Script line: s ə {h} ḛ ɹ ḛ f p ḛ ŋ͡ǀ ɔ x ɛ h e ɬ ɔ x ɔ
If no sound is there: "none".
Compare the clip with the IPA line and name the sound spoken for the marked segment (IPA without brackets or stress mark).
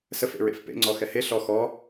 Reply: f